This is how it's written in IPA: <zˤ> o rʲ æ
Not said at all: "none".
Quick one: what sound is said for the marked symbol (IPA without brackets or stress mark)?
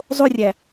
zˤ